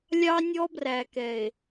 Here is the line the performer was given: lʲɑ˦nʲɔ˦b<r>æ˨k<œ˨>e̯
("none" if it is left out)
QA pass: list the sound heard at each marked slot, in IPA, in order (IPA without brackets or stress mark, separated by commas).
r, ɛ˨